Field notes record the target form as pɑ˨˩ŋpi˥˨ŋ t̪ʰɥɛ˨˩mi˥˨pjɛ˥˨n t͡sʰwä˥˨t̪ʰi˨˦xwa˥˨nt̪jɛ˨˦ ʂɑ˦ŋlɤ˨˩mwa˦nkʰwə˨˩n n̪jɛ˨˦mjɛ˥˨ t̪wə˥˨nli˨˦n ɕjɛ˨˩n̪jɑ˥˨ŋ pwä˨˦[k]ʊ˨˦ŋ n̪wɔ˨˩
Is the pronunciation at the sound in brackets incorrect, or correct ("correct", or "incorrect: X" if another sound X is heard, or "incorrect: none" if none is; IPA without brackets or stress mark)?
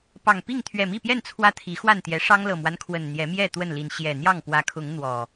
incorrect: kʰ